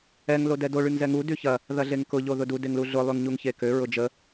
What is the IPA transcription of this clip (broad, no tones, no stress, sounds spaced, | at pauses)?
ɛ ŋ l o d ɛ d o ɭ y ŋ z ɛ ŋ u d y ç ɐ | ð ɐ ɮ e ŋ k ʊ ʎ o ð ʊ d u d e ŋ l u ɮ ʊ lˠ y ŋ ɲ u ŋ ç e k ø ɹ ʊ d͡ʒ ə